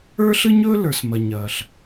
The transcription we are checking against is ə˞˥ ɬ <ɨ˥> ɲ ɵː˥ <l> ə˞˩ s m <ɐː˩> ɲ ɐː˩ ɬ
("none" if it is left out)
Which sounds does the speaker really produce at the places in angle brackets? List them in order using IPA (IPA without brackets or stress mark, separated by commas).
ɨ˥, l, ɐ˩